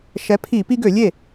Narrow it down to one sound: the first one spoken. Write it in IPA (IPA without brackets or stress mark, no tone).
ʃ